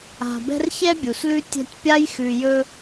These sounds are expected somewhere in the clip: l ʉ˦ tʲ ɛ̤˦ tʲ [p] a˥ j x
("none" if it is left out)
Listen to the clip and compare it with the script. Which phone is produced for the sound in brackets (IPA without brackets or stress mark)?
pʲ